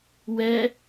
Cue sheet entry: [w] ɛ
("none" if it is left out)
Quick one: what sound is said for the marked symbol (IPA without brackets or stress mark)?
w